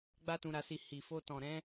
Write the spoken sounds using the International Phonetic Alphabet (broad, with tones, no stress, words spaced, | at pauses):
ɡ͡ba˦tũ˧ɾa˧si˧ hi˨fo˧ tɔ̃˨ɾɛ̃˨˦